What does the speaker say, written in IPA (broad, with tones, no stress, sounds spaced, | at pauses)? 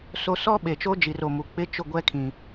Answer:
s o˦ s ɔ˦ ɓ e˨ t͡ʃ o˦ d͡ʒ i˨ r o˨ m u˨ k͡p ɪ˦ t͡ʃ ʊ˦˨ ɡʷ ɛ˦ kʰ ĩ˨